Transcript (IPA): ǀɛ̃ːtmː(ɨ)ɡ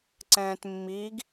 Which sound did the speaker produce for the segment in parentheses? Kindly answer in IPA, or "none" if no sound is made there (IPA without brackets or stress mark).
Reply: i